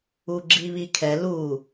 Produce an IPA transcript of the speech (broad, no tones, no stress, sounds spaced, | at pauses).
uː ɡ͡ǁ iː β i kʰ ɛ l uː